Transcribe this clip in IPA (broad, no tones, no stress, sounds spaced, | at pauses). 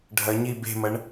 ɖʱ ɐ ɲ i b e̤ m ɐ ɳ